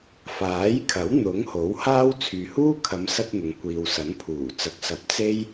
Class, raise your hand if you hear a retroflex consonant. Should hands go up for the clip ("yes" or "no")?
no